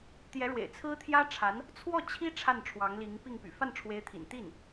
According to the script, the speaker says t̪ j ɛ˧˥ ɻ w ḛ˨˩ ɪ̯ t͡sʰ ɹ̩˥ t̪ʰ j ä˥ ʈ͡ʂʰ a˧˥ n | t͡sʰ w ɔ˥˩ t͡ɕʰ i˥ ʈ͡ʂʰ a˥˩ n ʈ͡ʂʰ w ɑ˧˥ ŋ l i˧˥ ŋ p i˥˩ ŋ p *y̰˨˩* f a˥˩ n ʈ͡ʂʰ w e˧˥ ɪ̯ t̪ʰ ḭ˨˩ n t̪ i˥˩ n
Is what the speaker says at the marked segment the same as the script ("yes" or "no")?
yes